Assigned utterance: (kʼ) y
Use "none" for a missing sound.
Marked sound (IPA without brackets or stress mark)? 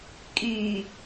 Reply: kʼ